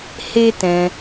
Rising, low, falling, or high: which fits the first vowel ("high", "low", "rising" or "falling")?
high